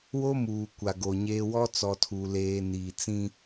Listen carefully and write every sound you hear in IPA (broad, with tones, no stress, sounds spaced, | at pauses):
w o˦ m uː˨ kʷ a˨ ɡ o˨ ɲ eː˦ w ɔ˦ t͡s ɔ˨ tʰ u˨ l eː˨ n iː˨ t͡s ĩ˦